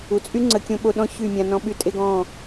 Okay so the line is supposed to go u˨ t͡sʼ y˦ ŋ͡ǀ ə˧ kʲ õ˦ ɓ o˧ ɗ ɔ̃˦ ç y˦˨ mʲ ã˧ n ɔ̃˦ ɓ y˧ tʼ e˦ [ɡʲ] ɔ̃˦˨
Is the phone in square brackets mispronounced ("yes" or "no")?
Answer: yes